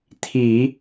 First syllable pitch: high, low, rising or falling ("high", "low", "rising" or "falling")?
low